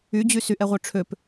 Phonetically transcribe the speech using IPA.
y d͡ʑ y s y ʔ ɛ ʁʷ œ ʈ͡ʂʰ ø p

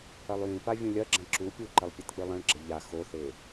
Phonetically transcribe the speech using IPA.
ɐ lˠ j ĩ p a vʲ ũ lʲ ɐ ɡ͡ǁ ɐ̃ ǁ u pʲ u ǃ ɐ lˠ pʲ e t k͡p ɨ lˠ ɐ̃ ɭ ɡ͡ǁ ɐ ʎ a x o θ e

